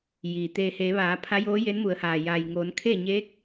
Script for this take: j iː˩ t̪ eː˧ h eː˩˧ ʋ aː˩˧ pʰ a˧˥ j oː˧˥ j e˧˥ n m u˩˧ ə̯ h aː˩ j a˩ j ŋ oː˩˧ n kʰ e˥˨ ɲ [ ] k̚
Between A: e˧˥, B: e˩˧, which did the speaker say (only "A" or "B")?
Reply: A